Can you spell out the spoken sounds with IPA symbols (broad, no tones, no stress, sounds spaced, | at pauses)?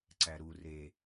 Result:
ǀ æ ɾ u r e